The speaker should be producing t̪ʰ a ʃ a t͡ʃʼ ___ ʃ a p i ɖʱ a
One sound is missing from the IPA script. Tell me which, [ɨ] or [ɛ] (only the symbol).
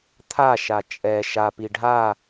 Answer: ɛ